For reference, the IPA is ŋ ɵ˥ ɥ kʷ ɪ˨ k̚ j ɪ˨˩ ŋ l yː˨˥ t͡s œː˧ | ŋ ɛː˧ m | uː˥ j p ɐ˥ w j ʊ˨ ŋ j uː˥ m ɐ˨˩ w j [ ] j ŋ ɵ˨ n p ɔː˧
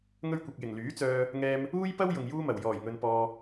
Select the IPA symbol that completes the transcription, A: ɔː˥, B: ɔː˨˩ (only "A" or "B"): B